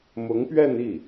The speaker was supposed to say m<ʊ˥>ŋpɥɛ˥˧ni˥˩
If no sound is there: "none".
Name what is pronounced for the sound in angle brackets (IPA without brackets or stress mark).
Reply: ʊ˧˥